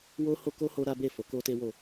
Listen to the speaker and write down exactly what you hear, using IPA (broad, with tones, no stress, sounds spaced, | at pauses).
w o˦ h o˦ k o˦ h o˦ ɾ a˦ b e˦˨ f o˨˦ k o˦ t e˦ w o˦˨